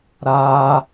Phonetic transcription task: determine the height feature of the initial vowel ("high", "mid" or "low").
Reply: low